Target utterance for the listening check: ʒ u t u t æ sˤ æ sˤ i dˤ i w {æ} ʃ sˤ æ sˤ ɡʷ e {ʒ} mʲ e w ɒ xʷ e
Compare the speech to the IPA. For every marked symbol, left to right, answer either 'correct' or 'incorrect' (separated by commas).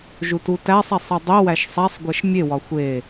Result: correct, incorrect